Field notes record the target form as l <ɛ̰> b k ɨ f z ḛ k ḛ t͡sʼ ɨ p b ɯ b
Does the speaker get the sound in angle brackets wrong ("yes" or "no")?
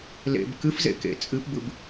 yes